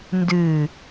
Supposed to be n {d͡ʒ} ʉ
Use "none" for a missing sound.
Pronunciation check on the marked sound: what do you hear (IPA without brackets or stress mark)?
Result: d